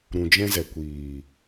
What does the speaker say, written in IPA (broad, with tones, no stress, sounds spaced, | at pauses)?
ɾ ũ˨ d͡ʒ ɛ̃˧ z ɛ˨ kʷ iː˨